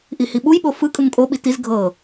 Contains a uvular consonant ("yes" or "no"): no